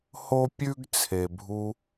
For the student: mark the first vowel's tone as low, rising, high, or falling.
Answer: high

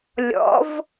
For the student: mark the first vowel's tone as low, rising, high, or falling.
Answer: rising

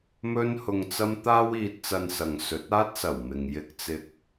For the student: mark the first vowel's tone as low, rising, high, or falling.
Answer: high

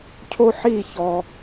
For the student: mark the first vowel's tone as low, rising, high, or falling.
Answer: high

